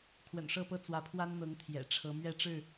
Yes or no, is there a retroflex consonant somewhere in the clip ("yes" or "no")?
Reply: yes